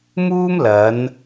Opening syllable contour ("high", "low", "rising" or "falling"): high